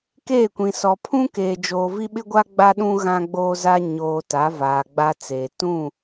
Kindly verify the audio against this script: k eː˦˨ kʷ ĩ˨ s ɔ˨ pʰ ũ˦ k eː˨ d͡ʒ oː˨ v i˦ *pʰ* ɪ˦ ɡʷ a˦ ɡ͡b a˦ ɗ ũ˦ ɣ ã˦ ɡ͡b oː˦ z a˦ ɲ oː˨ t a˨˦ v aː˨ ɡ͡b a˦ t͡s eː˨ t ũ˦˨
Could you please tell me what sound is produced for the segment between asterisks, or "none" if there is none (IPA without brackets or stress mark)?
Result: ɓ